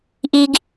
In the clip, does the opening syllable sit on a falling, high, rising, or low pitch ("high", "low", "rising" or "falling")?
high